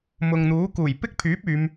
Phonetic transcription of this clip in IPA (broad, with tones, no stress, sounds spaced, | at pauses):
m ʊ˨ ŋ n̪ uː˨˥ k uː˨˩ j p ɪ˥ k̚ pʰ yː˨˥ p̚ yː˨˧ m